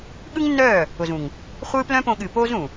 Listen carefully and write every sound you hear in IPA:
ɠ ɯ˦ ŋ nː œː˦˨ | ʊ˨ z ũ˨ ŋ | χʷ ɨː˦ p l œ̃˦ p õ˧ ɠ ɨː˨ p oː˦ z ũ˨

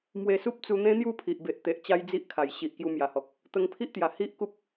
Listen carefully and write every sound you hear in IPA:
m w e˧ s u˦ p̚ t͡s u˧ n̪ ẽ˦ n̪ j u˥˧ pʰ i˨ ʔ b e˨ ʔ t̪ e˨ ʔ t͡ɕ a˦ j d͡z i˦ ʔ kʰ a˨˩ j ɕ i˨ ʔ k j u˧ m j a˨˩ h ɔ˨ k̚ | t̪ ə˧ ŋ pʰ i˦ ʔ t̪ j a˨˩ h i˦ ʔ k u˦ p̚

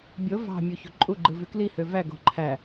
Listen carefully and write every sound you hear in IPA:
bʲ o v ɑ̤ mʲ u ç o̤ ǃʼ u ɡ͡ǃ ɯ v y k l i h ø v æ ɡ o̤ ǃʰ æ

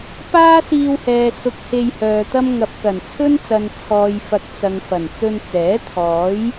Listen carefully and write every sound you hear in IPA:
p aː˥ s iː˧ w h ɛː˨ s ʊ˨ k̚ h e˧ j h œː˨ t̪ ɐ˥ m ŋ ɐ˨ p̚ k ɐ˨˩ n t͡sʰ ɵ˥ n t͡s ɐ˨ n t͡sʰ ɔː˨ j f ɐ˨ k̚ t͡s ɐ˨ ŋ f ɐ˨˩ n t͡s ɵ˧ n t͡s ɛː˨˥ t̪ʰ ɔː˨˥ j

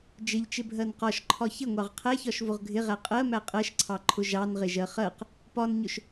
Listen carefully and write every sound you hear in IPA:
d͡ʒ ɪ ʎ t͡ʃ ɪ bʱ ɜ n q ɒ ʃ ǃʰ ɒ ç ɪ ŋʷ ɑ ʁ qʰ æ ç ɒ ʃ v ʊ ʁ ɡʱ ɪ ʁ æ qʼ ɜ m æ qʼ ɜ ʃ ǀʰ ɑ ǃʰ ʊ ʒ ɑ n ʁ ɪ ʒ ɜ χ ɜ q | p ɒ n ɲ ʊ ʃ

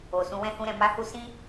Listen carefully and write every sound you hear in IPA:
o˨ s ũ˧ w ɛ̃˦ h ũ˦ ɾ ɛ̃˧ m a˦ h u˦ s ĩ˦

